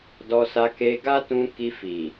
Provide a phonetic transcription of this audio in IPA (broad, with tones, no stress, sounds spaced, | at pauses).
d ɔ˧ s a˧ k e˧ ɡ a˦ t ũ˧ k i˧ f i˨